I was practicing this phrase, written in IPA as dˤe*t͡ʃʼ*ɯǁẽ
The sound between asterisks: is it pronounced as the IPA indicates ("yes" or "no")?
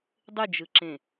no